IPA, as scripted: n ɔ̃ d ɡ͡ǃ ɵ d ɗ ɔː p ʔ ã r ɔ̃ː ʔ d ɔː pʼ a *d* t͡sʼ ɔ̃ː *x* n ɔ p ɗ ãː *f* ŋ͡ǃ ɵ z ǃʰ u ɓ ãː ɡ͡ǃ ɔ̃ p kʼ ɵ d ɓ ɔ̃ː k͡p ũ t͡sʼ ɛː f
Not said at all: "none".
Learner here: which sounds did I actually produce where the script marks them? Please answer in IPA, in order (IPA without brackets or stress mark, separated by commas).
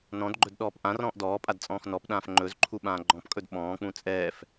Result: d, x, f